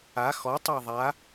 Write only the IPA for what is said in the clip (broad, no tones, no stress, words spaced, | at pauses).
a xɔtˤæ ðˤa